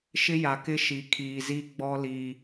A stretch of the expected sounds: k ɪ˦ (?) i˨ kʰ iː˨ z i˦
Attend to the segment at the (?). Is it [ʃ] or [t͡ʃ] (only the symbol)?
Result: ʃ